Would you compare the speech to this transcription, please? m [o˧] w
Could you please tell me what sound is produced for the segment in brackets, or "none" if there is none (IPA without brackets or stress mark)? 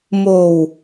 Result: o˨˩